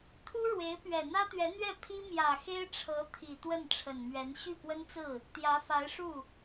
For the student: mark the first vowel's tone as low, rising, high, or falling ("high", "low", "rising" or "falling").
high